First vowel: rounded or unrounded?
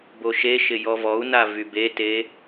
rounded